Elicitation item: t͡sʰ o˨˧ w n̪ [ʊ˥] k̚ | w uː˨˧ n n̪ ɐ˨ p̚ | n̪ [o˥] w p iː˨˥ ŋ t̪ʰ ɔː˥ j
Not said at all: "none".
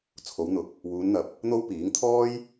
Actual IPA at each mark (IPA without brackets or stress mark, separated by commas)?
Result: ʊ˨˥, o˥